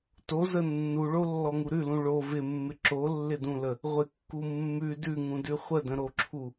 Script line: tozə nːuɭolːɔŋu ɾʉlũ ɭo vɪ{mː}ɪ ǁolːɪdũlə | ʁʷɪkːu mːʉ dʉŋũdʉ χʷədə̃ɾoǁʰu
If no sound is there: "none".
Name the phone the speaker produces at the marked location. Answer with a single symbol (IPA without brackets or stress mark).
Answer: mː